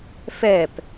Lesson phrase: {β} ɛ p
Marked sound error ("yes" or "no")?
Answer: yes